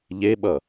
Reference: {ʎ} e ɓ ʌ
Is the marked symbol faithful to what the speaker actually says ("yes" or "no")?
yes